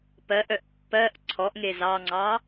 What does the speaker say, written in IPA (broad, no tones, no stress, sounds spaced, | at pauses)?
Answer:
p ɜ ʔ œ ʔ pː ɜ ʔ ǀʰ ɔ ʔ ŋ e z ɑ ŋ͡ǀ ɑ